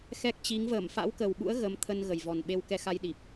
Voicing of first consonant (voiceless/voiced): voiceless